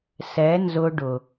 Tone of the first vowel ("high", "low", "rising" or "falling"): rising